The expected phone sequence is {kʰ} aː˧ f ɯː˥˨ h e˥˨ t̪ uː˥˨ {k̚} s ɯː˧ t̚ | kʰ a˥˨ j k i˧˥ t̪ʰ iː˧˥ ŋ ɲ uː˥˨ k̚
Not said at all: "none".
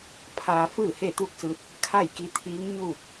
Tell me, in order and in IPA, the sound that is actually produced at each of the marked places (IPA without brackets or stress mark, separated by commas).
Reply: pʰ, k̚